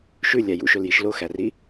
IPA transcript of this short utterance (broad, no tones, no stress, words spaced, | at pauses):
ʃʉlʲæ jṵʃɵljiʃ loxæri